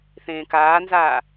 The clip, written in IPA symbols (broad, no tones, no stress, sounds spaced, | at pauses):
θ ẽː k aː n z aː